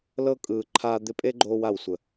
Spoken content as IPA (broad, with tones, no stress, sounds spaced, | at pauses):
l ɤ˦ kʼ ɯː˨ ǃʰ aː˧ d̪ ɪ˧ pʼ e˦ ɡ͡ǃ oː˧ w a˨ w sʷ ə˨